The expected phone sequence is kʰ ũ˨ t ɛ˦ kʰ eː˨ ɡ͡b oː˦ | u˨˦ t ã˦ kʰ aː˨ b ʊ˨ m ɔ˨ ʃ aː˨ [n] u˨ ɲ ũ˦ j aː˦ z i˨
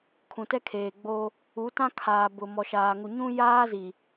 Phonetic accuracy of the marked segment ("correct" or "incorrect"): incorrect